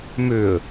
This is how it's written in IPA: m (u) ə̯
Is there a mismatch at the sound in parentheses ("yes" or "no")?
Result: yes